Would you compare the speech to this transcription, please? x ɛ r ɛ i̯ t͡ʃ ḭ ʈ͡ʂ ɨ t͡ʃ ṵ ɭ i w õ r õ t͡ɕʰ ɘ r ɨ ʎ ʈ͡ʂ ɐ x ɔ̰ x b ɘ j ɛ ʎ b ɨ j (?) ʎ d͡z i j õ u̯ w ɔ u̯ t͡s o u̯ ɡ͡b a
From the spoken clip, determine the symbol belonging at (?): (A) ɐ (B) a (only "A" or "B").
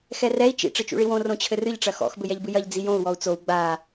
A